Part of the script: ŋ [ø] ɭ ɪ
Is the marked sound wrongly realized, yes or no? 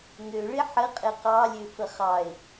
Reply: no